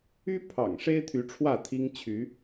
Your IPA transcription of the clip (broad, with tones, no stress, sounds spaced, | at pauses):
y˦ pʰ ɑ̰˨˩ ŋ ʂ e˦ ɪ̯ t̪ʰ y˨˦ ʈ͡ʂʰ w ä˥˨ t̪ʰ i˦ ŋ t͡ɕʰ y˨˦